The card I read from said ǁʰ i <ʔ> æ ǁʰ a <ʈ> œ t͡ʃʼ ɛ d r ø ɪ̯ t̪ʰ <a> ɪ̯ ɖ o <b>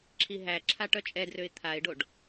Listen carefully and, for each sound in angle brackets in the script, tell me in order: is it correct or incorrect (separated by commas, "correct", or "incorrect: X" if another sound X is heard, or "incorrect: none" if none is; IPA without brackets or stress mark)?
incorrect: ɦ, correct, correct, incorrect: ɖ